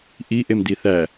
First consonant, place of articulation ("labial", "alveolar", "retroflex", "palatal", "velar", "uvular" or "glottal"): glottal